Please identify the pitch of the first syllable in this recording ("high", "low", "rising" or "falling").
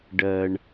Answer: low